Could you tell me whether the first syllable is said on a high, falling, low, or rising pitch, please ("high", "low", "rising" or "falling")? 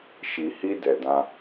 low